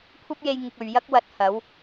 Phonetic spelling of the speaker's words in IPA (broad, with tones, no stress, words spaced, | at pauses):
kʷʰɐ˥p̚je˧j ŋɪ˧k̚ɵ˨ɥ jɐ˥k̚wɐ˨˥t̚ hɐ˨˥w